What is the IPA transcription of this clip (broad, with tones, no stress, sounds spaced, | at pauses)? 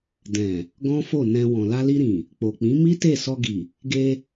d ɛ̃˨ | ɡ ɔ̃˦ f o˦˨ n ɛ̃˧ w ɔ̃˨ l a˧ l i˧ ɾ ĩ˨ | k͡p o˨ k͡p ĩ˨˦ m i˦ t e˦˨ s ɔ˧ ɡ i˨ | ɡ e˧